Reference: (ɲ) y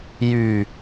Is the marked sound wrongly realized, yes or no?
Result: yes